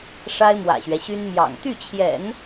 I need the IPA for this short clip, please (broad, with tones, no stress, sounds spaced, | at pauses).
ʂ a˥ ɪ̯ m w ä̰˨˩ ɕ ɥ ɛ˦ ɕ y˥ n m j ɑ̰˨˩ ŋ t̪ y˥˩ t͡ɕʰ j ɛ̰˨˩˦ n